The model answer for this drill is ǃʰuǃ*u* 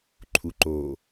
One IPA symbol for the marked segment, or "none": o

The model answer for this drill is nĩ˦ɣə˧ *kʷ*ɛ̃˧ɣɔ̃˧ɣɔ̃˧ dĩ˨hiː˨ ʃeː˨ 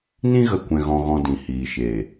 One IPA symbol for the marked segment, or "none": kʷ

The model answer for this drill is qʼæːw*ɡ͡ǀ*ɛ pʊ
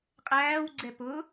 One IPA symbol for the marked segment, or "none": ɡ͡ǀ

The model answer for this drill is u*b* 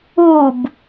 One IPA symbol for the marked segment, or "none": b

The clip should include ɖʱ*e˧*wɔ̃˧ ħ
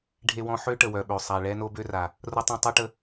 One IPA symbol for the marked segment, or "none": e˧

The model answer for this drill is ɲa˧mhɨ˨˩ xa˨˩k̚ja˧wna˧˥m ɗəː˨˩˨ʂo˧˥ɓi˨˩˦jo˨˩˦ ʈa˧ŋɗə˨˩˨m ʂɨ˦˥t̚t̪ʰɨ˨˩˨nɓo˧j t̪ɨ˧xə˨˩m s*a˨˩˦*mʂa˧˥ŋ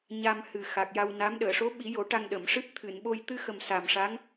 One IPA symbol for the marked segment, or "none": a˨˩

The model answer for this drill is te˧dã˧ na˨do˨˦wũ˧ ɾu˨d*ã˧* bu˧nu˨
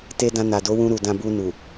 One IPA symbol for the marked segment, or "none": ã˧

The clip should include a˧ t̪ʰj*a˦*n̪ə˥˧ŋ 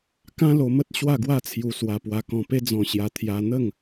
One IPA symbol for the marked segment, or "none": a˧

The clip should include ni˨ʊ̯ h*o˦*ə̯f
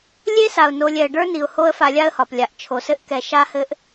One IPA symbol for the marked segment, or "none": o˦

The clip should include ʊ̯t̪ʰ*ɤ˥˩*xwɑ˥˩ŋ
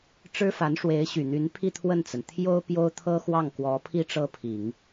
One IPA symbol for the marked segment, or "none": ɤ˥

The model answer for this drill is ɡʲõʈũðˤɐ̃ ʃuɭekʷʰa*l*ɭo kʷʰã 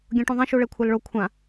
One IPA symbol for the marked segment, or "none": l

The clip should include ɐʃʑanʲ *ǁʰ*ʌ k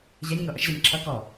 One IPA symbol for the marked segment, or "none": ǁʰ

